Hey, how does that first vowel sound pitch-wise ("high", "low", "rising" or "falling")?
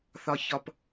low